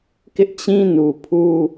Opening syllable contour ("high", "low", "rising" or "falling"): high